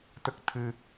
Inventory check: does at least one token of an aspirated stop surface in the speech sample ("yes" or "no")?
yes